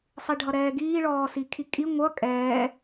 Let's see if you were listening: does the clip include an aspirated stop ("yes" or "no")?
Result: yes